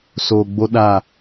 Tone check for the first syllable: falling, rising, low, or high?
low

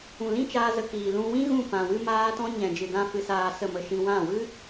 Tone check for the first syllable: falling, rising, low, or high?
low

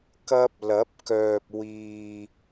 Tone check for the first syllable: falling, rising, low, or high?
high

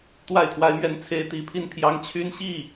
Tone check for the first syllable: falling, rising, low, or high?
falling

